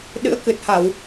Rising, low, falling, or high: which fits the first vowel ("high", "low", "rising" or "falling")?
rising